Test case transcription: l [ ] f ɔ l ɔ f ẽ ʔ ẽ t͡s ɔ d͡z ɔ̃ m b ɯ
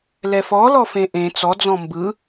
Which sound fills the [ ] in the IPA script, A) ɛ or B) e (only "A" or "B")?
A